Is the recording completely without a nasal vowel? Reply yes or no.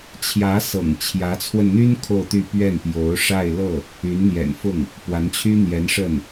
yes